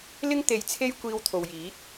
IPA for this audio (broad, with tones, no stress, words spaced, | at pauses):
lɪ˥ŋ t̪e˧jt͡sʰe˥j kʷiː˧wt̪ʰo˨wjiː˨˥t̚